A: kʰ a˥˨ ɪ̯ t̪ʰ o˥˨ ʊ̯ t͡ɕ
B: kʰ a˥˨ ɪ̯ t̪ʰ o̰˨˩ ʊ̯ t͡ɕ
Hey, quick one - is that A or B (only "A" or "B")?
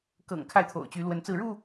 B